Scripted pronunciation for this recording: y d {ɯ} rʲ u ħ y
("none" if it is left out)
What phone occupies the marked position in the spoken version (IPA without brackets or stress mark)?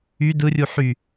ɯ